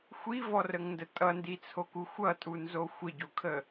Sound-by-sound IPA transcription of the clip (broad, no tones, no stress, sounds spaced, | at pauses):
xʷ i v ɔ r ə ŋ n d ə tʼ ʌ n d i t͡sʰ o k u xʷ ʌ tʼ u n z o xʷ ə ɟ o kʰ ə